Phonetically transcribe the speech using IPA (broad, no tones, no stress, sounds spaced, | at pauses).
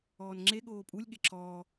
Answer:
ɔː n ŋ͡ǁ e ɠ oː pʼ u lʲ ɠ e ǁʰ ɔː